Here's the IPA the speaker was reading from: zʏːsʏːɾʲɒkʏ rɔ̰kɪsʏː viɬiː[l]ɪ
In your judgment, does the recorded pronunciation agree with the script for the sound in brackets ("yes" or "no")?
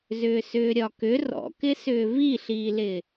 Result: yes